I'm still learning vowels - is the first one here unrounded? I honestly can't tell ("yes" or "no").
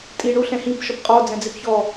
yes